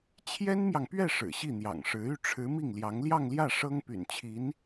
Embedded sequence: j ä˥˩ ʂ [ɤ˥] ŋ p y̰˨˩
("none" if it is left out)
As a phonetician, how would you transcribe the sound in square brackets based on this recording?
ɤ˥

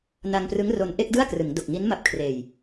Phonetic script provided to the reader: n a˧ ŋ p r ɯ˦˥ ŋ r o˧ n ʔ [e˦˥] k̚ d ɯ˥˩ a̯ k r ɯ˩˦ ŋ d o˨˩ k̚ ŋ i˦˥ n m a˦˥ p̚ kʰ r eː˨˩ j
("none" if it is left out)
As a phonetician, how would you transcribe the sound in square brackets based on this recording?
e˥˩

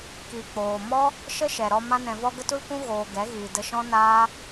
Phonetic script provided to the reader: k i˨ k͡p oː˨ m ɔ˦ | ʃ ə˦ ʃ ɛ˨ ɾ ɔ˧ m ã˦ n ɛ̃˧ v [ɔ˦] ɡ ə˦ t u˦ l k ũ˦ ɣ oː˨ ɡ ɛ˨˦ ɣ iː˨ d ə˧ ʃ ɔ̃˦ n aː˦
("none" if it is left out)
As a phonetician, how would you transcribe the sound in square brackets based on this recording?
ɔ˦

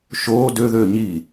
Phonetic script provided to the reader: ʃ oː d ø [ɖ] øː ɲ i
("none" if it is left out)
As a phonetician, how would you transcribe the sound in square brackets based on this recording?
ð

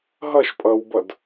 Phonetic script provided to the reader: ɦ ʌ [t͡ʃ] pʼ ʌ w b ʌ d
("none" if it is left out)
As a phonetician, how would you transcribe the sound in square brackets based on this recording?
ʃ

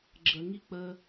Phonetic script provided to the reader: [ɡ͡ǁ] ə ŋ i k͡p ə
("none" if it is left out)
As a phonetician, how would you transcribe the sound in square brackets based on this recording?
ɡ͡ǁ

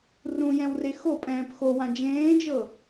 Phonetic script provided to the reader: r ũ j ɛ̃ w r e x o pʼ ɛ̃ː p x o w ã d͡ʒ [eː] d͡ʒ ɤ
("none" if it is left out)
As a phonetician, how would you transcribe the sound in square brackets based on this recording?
ẽː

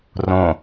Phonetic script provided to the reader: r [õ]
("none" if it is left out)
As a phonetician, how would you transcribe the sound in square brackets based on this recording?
õ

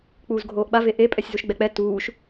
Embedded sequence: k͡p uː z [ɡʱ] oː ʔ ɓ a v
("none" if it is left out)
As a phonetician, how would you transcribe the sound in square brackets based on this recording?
ɡʱ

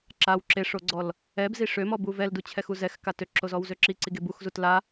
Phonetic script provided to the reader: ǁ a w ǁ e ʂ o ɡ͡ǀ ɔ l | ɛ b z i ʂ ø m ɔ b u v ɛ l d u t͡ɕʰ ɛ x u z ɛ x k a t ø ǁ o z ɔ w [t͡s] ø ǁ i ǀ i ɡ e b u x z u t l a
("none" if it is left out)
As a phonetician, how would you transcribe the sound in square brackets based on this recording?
z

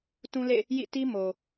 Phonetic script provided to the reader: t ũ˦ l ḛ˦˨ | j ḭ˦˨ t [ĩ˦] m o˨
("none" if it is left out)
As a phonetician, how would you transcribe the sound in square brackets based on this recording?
i˦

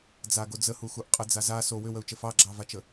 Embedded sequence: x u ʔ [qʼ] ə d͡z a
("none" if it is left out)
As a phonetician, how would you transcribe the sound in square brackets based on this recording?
qʼ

